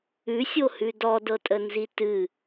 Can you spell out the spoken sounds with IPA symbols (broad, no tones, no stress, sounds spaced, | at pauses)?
ʉ sʲ o h ʉ d ɔ d ɤ tʼ ə n z i t ɨ